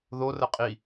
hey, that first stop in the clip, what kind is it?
ejective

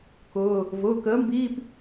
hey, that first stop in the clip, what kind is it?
plain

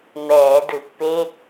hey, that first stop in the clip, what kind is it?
plain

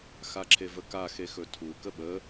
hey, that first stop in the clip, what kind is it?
click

